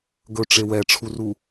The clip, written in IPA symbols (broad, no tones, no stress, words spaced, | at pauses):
ɡɵʈ͡ʂe wɛʈ͡ʂʰuru